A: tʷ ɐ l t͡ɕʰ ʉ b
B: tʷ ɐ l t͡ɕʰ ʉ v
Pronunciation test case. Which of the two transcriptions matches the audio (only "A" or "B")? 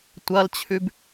A